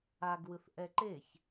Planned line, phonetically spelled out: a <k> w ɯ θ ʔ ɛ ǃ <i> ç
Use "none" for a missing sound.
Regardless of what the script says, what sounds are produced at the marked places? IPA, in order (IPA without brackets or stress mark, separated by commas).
ɡ, e